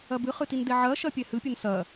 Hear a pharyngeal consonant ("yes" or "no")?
yes